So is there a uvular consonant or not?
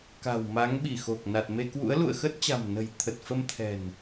no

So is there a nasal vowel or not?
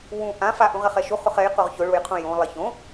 yes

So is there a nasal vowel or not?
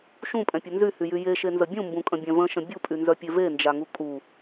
yes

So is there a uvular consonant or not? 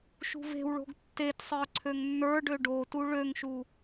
no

